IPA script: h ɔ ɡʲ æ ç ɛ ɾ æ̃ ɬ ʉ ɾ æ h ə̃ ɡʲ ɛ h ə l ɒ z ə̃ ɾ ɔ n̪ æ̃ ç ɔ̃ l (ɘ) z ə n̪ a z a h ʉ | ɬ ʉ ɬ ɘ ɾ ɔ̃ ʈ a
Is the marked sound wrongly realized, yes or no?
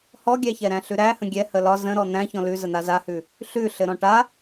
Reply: yes